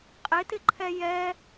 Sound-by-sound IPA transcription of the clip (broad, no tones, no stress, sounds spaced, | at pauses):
qʼ ɪ t ɪ ǃʰ ɛ j ɛ